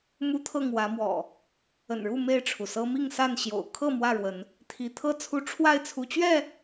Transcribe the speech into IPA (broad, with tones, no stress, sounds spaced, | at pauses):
m u˦ t̪ʰ ɤ˥˨ ŋ w ä˨˦ m w ɔ̰˨˩ | ə̰˨˩ n ɻ u˥˨ m e˥˨ ɪ̯ ʈ͡ʂʰ u˩ s ɤ˦ m i˥˨ ŋ s a˥˨ n ɕ j o̰˨˩ ʊ̯ kʰ ɤ˥˨ m w ä˥˨ ɻ w ə˨˦ n | t̪ʰ i˨˦ t̪ʰ ɤ˥˨ t͡sʰ u˦ ʈ͡ʂʰ w a˥˨ ɪ̯ t͡sʰ u˨˦ t͡ɕ ɥ ɛ˥˨